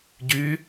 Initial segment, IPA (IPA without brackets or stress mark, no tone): ɟ